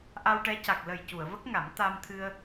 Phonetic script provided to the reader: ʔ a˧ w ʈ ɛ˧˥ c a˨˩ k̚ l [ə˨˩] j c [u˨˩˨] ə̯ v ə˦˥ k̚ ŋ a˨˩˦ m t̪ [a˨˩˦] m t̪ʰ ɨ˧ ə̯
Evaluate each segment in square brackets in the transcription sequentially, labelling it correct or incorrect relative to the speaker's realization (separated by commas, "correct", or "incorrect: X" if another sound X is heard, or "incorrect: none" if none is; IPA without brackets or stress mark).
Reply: correct, correct, incorrect: a˧